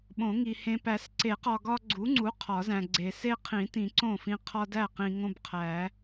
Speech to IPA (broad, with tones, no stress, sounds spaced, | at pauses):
ɓ õ˨˩˦ ŋ i˨ h ẽ˨ p æ˨˩˦ s ǀ e˨˩˦ q ɒ˨ ɡ ɒ˦ ɡ͡ǀ u˨˥ ŋ͡ǀ u˨˥ qʰ ɒ˨˩˦ z æ̃˨ ɡ͡ǀ e˨˩˦ s e˦ qʰ ĩ˨˩˦ t ĩ˨˩˦ ǀ õ˥˩ f ĩ˦ qʰ ɒ˦ d æ˥˩ q ĩ˨ ŋ õ˦ b qʰ æ˨˩˦